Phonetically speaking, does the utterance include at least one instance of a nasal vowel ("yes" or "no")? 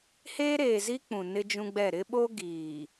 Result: yes